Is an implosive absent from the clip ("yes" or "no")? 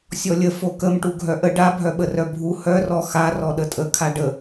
no